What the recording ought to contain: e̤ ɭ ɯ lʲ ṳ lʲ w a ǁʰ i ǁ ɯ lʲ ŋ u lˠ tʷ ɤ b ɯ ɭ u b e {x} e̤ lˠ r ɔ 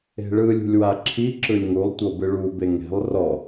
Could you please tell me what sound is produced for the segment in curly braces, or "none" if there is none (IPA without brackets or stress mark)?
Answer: ŋ